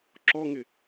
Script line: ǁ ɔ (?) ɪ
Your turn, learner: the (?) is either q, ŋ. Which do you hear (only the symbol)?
ŋ